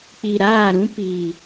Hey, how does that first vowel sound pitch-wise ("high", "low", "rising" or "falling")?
low